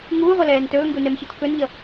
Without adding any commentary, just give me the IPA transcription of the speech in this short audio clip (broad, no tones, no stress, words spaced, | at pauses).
ŋuːʁʷʌlɛːn tɵːŋɡunɛmçɯt kɵnʎʌ